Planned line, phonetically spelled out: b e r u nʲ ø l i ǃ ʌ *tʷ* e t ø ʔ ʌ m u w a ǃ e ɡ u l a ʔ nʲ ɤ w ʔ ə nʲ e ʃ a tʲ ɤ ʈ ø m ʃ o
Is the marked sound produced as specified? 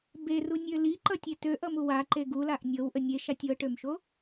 no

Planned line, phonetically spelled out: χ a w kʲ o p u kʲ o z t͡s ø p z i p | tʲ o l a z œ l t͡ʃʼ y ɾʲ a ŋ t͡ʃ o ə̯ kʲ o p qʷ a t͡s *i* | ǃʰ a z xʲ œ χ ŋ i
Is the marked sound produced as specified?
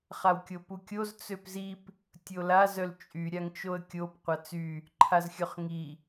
no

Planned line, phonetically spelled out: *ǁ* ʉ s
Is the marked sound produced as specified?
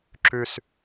yes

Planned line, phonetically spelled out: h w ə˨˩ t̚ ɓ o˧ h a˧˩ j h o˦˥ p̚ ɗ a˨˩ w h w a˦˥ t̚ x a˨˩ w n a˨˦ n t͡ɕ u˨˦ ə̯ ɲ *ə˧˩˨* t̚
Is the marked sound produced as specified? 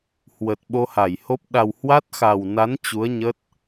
no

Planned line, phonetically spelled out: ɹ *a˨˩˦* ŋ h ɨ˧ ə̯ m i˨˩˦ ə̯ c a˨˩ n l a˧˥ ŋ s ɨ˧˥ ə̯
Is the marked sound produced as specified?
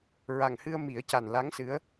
no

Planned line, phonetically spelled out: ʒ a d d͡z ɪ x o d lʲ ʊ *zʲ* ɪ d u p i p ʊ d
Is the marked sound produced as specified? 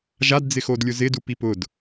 no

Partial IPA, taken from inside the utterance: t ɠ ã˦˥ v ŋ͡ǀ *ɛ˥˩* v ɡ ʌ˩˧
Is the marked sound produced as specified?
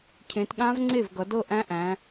no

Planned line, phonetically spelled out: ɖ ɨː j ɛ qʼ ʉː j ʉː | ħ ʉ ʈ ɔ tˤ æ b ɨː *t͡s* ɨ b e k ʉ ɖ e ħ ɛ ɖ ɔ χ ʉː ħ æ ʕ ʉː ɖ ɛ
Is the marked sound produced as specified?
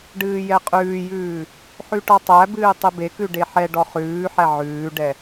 no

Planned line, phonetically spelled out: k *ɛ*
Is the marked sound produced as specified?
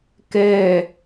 yes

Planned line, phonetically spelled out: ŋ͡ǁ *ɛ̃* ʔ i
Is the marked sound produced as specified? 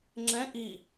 yes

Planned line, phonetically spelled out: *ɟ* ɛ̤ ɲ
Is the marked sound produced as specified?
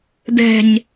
no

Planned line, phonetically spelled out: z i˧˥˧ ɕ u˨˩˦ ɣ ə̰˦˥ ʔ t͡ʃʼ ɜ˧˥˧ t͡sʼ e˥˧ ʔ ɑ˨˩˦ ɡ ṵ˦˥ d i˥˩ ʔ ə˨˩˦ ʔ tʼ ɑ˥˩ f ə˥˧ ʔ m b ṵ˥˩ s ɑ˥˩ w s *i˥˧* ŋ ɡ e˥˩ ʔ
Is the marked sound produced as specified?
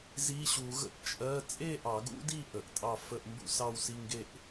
no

